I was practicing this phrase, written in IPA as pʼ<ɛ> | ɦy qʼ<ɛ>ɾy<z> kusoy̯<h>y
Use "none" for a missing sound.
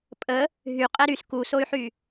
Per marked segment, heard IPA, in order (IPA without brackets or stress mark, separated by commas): ə, ɛ, s, ħ